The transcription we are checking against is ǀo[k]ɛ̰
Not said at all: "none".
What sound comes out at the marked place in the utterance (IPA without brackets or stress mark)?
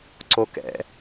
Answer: k